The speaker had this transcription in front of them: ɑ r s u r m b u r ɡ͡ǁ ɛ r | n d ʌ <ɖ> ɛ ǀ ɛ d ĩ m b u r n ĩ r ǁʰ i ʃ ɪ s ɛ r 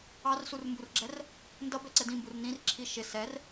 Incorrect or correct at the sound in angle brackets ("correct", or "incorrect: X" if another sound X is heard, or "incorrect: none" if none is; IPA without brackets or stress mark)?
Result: incorrect: b